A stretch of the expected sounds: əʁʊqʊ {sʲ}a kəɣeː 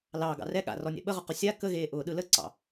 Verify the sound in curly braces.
correct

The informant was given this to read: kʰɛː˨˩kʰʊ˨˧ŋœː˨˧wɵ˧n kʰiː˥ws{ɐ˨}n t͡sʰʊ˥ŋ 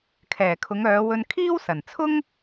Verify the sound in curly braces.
incorrect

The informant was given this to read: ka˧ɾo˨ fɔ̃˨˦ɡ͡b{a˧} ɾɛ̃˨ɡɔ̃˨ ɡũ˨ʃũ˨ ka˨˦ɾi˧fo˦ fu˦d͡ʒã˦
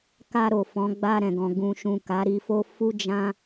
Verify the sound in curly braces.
correct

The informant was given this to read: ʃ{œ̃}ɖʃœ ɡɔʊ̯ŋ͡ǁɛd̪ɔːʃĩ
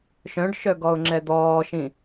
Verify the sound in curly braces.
correct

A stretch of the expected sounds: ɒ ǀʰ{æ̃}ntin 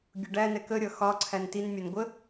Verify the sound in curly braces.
incorrect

